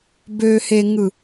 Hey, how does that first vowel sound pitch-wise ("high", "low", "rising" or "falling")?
low